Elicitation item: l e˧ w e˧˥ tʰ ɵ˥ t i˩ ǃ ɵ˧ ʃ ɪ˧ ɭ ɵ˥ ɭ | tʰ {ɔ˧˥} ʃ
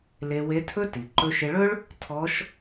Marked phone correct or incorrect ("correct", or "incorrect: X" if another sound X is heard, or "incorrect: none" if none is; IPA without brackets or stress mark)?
correct